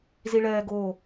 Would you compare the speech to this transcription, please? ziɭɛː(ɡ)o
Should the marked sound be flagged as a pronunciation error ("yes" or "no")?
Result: no